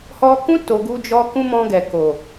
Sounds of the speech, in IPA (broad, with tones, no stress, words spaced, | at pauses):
hɔ˧kũ˦ to˧ɡu˦d͡ʒɔ˦ kũ˦mɔ̃˧ɡɛ˨ko˨